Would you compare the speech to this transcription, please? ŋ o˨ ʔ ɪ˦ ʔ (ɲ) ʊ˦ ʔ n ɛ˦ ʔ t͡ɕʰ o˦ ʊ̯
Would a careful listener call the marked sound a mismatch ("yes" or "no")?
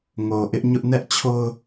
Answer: no